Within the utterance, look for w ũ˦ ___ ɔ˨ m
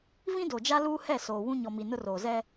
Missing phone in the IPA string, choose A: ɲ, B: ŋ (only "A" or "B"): A